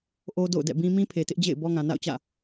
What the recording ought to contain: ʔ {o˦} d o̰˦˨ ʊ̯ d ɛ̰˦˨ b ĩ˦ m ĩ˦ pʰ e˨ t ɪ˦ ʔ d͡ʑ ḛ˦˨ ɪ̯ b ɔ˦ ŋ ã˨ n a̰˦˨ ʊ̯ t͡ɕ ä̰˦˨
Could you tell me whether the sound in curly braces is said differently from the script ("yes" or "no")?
no